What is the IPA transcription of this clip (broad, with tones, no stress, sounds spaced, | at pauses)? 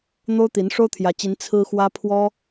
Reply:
n̪ o˥ ʊ̯ t̪ i˧˥ n ʂ o˥ ʊ̯ t̪ʰ j ä˧˥ t͡ɕ i˧˥ n t͡sʰ ɹ̩˥ x w ä˥ pʰ w ɔ˥